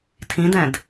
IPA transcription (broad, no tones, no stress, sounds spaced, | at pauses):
tʰ ĩ d ɛ̃ d